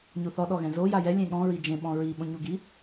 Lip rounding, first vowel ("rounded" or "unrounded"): rounded